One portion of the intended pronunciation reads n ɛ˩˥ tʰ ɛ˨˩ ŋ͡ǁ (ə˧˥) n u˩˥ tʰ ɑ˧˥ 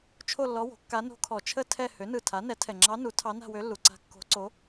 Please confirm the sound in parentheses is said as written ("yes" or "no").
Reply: no